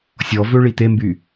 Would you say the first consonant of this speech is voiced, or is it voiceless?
voiceless